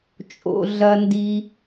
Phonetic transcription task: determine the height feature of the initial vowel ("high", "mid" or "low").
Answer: mid